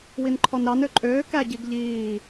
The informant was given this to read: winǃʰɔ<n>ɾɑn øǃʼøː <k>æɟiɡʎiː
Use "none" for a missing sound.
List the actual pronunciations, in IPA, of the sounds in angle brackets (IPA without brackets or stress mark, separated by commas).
n, k